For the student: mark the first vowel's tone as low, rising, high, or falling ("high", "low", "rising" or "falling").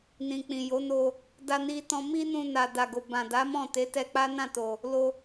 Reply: low